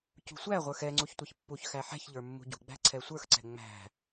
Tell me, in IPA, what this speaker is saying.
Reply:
c ṳ sʷ æ ʁʷ ə˞ x ɛ ŋ͡ǀ u ç tʷ ʌ ç pː u ç x æ ħ ɛ̤ ç ʎ ə˞ mː ṳ ɟ ṳ ɡ͡b æ̤ ǀʰ ɛ sʷ ə˞ x ǀ ɛ̤ ŋ͡m æ̤

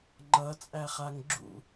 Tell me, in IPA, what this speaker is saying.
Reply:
ŋ͡ǃ ʌ t͡sʼ æ χ a ŋ ɡ͡ǁ ṵ

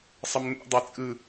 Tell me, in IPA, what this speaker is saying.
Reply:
sˤ ə m n ṵ dˤ e t͡sʼ ɯ

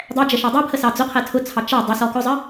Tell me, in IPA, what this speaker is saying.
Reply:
dˤ ɛ d͡ʒ ə ʃ æ dˤ ɛ pʰ ə s ɑ d͡z ʊ qʰ ɛ tʰ ʊ t͡sʰ ɑ t͡ʃ æ dˤ ʊ s ɔ k ʊ zˤ ə

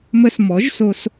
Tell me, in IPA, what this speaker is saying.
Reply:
m ə˧ s m ɔ˨˦ ʒ s o˧ s

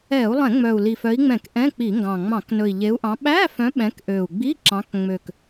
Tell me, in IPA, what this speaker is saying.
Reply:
ɛ˧˩˧ u̯ lˠ ɛ̃˧˩˧ ŋ͡m œ˨˩ u̯ l i˨˩ f œ˨˦ i̯ ŋ͡m ɛ̃˧˩˧ k ʔ ɛ̃˧˥˧ k͡p i˧˩˧ ŋ ɡ ɑ̃˨˩ ŋ͡m ɑ̃˧˩˧ k n ɵ˨˩ i̯ ʎ e˨˦ u̯ ʔ ɑ̃˨˦ ɓ æ˧˥˧ f œ̃˨˦ ɓ ɛ̃˨˦ k ʔ ø˨˩ u̯ ɡ͡b i˧˥˧ ǁ ɑ̃˨˦ k ŋ͡m ø˨˩ k

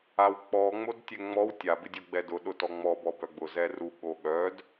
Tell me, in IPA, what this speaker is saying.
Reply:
a w k͡p ɔ ŋ͡m o d tʲ ɛ ŋ͡m ɔ w tʲ a b ɪ dʲ o ɡ͡b ɛ d ʊ ɗ ʊ t ɔ ŋ͡m ɔ b ɔ b œ ɡ͡b ʊ z ɛ r u ɠ o ɠ œ d

